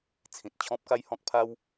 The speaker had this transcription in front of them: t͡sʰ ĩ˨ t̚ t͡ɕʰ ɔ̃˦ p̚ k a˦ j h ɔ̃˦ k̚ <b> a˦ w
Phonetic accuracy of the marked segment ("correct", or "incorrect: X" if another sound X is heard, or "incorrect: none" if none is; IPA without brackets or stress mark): incorrect: pʰ